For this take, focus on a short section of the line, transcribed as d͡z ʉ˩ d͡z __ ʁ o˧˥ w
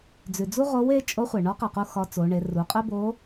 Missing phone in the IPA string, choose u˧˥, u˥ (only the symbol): u˥